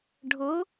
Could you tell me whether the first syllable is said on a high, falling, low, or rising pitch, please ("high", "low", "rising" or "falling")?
rising